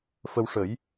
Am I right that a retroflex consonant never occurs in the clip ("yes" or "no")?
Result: no